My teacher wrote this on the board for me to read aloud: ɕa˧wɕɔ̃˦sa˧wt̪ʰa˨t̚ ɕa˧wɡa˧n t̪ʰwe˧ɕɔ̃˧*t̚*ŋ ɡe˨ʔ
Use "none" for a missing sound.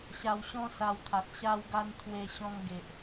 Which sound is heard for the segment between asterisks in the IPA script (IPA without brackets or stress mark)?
none